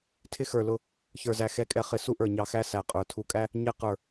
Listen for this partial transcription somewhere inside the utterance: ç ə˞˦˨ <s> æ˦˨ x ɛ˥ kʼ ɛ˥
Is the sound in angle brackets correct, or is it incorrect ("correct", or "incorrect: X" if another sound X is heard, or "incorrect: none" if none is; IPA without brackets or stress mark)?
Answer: incorrect: z